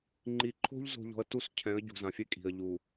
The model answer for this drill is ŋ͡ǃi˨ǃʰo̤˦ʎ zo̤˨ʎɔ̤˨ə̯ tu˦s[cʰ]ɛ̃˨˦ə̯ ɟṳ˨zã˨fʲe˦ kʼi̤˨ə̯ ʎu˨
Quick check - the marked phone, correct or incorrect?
correct